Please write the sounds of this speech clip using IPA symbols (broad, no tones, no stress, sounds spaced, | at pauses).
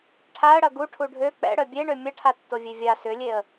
ʈʰ a ə̯ ɽ ɐ ɡ u ʈʰ u ɖʱ ø k͡p ɛ̰ ɽ œ bʲ e ɳ ø mʲ ɐ ʈʰ a tː o vʲ e vʲ a s ʏ lʲ e ə̯